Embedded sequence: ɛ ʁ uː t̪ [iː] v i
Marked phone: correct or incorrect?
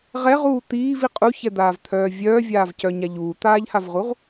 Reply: correct